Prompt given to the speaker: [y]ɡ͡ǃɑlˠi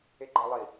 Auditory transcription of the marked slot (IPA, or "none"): e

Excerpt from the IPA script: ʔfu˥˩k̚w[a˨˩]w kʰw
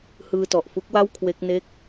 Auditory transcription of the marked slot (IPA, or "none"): a˥˩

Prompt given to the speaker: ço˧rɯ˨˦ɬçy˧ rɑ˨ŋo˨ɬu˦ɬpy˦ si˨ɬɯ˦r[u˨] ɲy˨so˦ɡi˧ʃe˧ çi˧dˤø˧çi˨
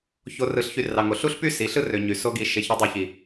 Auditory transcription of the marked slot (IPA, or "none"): ø˨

